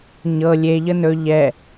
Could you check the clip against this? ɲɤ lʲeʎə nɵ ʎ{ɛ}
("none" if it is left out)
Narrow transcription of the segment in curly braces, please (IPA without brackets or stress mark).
ɛ